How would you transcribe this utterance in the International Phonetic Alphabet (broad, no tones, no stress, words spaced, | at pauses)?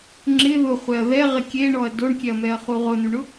ŋ͡ǁɪ ðʊχʷɛɐ̯ ðɛʁɪ kʲeɳɔɐ̯ doɳkʲɛɐ̯mɛɐ̯χu ʁʊnuɳʊ